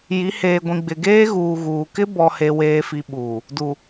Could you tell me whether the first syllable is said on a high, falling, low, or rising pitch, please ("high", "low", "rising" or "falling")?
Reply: rising